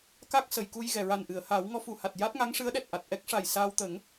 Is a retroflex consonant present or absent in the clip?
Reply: present